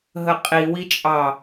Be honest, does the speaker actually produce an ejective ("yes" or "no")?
yes